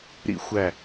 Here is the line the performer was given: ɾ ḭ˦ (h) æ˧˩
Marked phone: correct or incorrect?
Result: incorrect